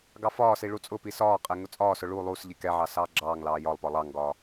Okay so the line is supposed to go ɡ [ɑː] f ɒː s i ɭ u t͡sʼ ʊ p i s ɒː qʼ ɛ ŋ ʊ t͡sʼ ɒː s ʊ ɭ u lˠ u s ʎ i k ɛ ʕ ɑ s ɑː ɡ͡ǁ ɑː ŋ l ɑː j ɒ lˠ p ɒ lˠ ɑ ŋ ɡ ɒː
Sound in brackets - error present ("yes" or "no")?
yes